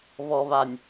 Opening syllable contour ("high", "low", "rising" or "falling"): low